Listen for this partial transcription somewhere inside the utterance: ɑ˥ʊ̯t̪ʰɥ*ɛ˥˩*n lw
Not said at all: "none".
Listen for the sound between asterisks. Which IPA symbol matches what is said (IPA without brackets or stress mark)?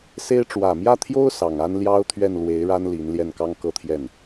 ɛ˥˩